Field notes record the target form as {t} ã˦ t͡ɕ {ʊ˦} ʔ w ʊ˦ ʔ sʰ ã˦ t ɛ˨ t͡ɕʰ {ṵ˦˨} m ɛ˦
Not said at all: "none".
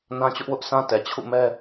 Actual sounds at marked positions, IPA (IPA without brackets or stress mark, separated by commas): n, ʊ˦, ṵ˦˨